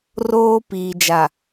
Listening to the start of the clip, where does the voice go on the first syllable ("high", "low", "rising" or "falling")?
high